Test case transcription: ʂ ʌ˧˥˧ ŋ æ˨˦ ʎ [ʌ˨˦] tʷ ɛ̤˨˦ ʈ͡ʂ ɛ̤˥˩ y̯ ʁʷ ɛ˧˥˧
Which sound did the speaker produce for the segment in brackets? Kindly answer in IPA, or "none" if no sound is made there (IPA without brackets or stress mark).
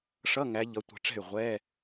ʌ˨˦